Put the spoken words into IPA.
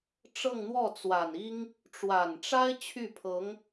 ʈ͡ʂɤ˥˧ŋn̪wɔ˥˩t͡swa˨˩ni˥ŋ | ʈ͡ʂwa˨˩nʈ͡ʂa˥ɪ̯ t͡ɕʰy˥˩pʰɤ˧˥ŋ

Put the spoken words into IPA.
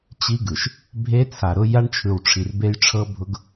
t͡ɕi˦ɡɯ˨ʃ | bʱe˦t͡sʰa˨ɾʊ˦ ja˦ɳt͡ʃʰɯ˨wʈ͡ʂʰi˨r be˦jʈ͡ʂʰɤ˦bʱʊ˦ɡ

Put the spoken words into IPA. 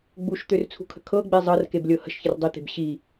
ɡ͡buʃt̪ørt͡sʰṳkʰə̤ kʰɤɡ͡be zˤɤrkeblʲɤ hə̤ʃçər dˤit̪e̤b ɕi

